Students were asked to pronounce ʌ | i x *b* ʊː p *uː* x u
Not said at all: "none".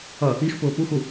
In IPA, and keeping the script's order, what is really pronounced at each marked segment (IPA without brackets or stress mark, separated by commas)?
p, u